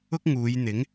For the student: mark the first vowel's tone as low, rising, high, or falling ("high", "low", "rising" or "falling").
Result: high